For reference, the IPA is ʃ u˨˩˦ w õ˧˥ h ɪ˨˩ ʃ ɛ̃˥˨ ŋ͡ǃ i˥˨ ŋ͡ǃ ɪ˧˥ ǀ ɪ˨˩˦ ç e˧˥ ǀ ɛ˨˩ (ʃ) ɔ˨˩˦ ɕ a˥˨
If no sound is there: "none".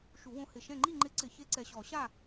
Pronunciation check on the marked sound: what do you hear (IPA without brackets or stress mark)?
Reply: ɕ